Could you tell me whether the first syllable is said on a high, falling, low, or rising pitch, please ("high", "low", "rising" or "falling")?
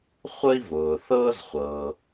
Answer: high